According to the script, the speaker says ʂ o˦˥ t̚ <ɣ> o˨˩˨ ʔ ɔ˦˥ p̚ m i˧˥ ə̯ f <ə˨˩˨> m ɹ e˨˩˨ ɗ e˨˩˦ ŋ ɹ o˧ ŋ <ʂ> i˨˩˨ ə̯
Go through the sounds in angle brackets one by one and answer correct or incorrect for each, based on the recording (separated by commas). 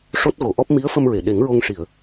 correct, incorrect, correct